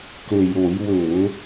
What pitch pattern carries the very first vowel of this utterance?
low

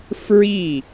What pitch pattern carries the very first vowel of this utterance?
falling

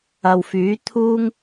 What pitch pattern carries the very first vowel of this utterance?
low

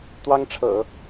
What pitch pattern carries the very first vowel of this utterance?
high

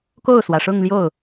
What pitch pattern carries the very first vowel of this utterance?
falling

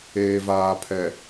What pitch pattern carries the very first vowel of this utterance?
low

